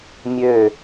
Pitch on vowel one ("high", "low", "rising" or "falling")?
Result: falling